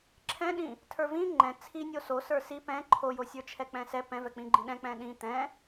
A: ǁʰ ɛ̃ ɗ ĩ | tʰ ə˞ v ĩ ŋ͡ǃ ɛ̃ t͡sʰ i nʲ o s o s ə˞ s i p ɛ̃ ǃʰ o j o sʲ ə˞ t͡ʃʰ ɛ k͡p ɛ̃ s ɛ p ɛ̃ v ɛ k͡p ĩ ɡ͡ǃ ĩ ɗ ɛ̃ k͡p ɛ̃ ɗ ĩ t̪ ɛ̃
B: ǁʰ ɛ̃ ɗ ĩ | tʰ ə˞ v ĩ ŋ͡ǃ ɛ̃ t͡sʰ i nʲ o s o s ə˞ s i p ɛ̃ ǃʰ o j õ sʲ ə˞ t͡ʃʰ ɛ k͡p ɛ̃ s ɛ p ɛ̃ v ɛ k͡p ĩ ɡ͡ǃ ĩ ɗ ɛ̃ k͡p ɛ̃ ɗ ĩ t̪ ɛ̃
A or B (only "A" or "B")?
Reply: A